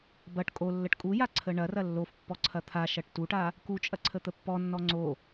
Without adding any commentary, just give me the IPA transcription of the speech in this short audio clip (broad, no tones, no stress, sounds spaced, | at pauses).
b ɐ ʈ kʼ o lː ə ʈ kʼ u j a ǀʰ ə ɳ ɐ r ɐ lː o f pː ɔ ǀʰ ɐ t̪ʰ a ʃ ɐ ʈ t u ʈ a | k u t͡ʃʼ ɐ ǀʰ ə t̪ ə pː ɔ nː ɔ ŋ͡ǀ o